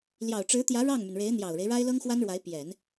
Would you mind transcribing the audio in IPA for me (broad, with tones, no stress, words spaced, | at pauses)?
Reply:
ljɑ˨˩ʊ̯ʈ͡ʂɻ̩˧˥t̪jä˧˥ ɻɑ˥˩ŋmy˩nɻe˧˥ɪ̯ n̪jɑ˨˩ʊ̯ɻe˦ɪ̯ ɻa˥ɪ̯lɤ˥ŋxwa˥nɻwa˧˥ɪ̯ pjɛ˨˩˦n